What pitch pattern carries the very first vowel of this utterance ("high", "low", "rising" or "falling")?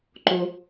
low